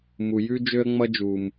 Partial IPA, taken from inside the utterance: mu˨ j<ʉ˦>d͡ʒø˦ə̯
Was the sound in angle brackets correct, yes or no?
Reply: yes